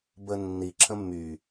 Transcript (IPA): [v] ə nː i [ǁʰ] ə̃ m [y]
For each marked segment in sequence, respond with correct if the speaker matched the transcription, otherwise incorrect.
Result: incorrect, correct, correct

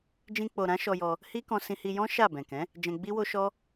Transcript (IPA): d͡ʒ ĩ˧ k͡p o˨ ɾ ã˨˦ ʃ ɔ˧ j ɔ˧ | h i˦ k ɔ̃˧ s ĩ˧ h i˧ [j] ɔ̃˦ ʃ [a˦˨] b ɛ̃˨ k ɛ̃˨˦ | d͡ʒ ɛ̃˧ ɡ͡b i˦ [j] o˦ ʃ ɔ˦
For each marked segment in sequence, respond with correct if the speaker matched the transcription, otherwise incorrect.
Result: correct, correct, incorrect

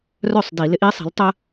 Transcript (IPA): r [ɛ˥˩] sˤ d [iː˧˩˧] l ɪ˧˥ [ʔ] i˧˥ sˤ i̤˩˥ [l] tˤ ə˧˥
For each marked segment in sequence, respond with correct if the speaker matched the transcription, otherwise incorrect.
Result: incorrect, incorrect, correct, correct

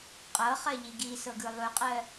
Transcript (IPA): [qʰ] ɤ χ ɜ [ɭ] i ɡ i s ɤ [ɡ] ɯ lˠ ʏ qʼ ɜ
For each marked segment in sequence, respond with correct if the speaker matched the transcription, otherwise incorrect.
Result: incorrect, incorrect, correct

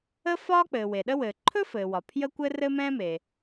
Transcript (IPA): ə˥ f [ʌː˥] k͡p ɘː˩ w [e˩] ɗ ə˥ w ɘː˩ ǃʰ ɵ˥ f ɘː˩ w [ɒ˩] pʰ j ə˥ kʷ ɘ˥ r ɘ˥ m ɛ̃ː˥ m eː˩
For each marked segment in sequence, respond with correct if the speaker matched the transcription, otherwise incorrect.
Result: incorrect, correct, correct

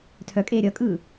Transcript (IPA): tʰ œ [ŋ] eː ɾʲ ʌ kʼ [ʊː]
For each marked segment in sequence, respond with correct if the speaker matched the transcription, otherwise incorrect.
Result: incorrect, incorrect

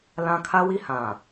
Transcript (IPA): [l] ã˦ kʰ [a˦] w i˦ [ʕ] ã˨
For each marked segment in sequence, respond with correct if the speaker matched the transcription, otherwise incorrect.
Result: correct, correct, incorrect

